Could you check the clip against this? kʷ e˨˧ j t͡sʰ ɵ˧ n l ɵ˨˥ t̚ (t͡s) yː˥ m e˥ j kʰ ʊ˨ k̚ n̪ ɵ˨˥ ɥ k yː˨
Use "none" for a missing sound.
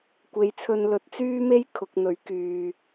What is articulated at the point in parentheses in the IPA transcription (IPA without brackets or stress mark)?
t͡s